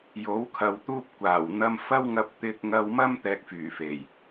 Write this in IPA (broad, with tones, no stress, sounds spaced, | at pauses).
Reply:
j o˨˥ w kʰ ɐ˨ w t̪ uː˥ p̚ kʷ aː˨˩ w n̪ ɐ˧ m f ɐ˥ w ŋ ɐ˧ p̚ t̪ ɪ˧ k̚ ŋ ɐ˧ w m ɐ˥ m t̪ ɛː˥ k̚ f yː˨˩ f e˨˩ j